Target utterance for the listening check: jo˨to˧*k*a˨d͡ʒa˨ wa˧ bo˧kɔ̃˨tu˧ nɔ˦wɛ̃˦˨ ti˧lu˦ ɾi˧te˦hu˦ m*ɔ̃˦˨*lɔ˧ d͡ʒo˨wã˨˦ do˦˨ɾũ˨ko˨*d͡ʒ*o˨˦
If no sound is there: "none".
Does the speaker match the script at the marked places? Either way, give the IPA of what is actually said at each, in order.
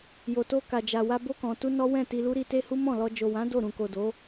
k, ɔ̃˦˨, d

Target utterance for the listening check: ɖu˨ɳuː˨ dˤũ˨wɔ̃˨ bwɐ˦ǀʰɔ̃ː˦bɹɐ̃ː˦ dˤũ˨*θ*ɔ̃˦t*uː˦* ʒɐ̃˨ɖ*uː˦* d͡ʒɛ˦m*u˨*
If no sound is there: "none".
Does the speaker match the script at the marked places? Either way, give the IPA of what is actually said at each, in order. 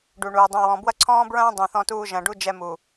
θ, uː˦, u˦, u˨

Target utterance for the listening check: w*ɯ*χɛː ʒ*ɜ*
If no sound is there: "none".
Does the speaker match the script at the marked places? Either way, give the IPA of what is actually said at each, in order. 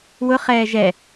ʊ, ɛ

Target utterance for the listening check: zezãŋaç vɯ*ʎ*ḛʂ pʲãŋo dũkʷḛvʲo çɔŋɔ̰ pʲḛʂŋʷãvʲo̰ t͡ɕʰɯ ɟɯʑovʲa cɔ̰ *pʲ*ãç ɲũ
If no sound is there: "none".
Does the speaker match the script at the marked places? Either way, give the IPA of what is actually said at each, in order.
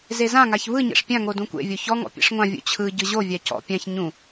ɲ, pʲ

